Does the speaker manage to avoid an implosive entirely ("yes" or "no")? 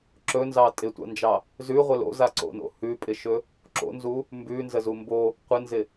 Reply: yes